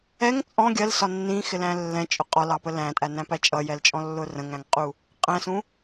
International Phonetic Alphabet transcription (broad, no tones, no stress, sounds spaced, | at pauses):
ɛ ŋ t͡sʼ ɔ̃ ɡʲ ɜ l s ɒ nː ĩ x ɪ l æ̃ lː ɛ̃ t͡ʃʼ ʊ qʼ ɒ l ɑ p ə l æ̃ tʼ æ n æ̃ p æ t͡ʃʼ ʌ j ɛ l t͡ʃʼ ɔ̃ lː ʊ r ə̃ ŋ æ̃ ŋ qʼ u | qʼ æ̃ s ũ